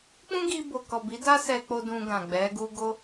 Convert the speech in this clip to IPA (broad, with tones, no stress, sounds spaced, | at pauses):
k͡p ũ˦ ɡ i˧ b o˨ k ɔ˨ b i˨˦ d a˦ s ɛ˧ k͡p o˧ d ũ˧ ɡ ã˨ ɡ͡b ɛ˨˦ ɡ u˦ ɡ o˦